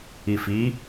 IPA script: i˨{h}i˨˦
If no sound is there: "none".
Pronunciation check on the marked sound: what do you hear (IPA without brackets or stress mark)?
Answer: f